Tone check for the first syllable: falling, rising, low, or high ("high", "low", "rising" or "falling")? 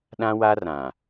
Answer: high